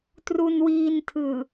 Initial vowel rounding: rounded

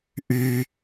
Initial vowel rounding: rounded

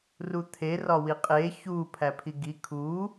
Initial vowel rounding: rounded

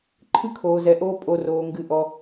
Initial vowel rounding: unrounded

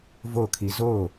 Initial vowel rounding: rounded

